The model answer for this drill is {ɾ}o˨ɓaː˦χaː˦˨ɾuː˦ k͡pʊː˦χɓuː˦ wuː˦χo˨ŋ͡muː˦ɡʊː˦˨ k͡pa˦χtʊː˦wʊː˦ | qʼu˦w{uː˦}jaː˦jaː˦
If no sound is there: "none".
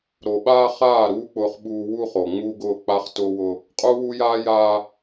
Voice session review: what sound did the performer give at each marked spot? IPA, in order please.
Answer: ɾ, u˦

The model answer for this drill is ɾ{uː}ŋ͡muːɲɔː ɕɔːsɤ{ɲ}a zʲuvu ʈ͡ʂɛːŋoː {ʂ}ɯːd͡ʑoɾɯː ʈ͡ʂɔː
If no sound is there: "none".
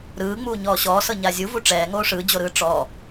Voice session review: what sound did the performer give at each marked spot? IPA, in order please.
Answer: ɯː, ɲ, ʂ

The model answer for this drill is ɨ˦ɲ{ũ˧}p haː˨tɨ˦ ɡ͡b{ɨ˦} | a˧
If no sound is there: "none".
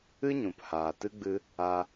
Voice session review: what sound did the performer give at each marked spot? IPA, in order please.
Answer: ũ˨, ɨ˧

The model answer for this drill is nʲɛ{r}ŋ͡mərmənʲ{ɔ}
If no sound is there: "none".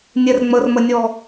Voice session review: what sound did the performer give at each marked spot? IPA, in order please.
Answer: r, ɔ

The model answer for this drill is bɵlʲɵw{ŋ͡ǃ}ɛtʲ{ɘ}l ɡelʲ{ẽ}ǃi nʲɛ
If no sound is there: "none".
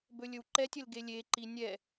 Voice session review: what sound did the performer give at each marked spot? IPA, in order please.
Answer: ǃ, ɘ, e

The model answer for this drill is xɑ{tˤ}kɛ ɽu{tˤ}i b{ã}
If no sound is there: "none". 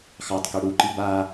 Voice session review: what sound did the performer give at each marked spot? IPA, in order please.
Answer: tˤ, ǃ, a

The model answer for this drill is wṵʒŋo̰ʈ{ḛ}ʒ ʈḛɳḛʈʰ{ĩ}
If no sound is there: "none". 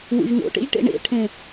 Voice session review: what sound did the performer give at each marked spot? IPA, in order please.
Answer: ḛ, ẽ

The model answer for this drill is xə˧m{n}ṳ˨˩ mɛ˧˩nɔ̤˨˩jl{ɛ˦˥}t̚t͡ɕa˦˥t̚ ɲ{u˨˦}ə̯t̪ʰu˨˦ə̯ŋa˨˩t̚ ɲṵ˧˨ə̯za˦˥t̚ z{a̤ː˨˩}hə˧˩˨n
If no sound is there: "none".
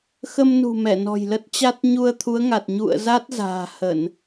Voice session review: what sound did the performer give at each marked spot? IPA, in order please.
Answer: n, ə˦˥, u˧, a̤ː˨˩

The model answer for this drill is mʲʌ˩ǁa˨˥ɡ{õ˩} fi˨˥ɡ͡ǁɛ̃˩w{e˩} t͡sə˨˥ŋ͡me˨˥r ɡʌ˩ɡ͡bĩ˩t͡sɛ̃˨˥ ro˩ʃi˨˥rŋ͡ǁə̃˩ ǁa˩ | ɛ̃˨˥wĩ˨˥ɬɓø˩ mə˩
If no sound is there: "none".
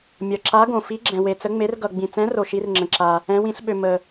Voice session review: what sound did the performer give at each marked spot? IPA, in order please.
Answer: õ˩, e˩

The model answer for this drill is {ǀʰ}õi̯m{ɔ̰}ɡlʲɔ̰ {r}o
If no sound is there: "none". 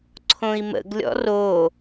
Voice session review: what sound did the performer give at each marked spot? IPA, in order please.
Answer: ǀʰ, ə̰, r

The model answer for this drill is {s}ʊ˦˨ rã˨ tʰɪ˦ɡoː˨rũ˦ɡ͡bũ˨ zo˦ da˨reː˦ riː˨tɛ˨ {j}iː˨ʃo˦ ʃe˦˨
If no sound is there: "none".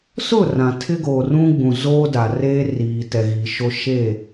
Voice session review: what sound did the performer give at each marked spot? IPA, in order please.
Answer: s, ɣ

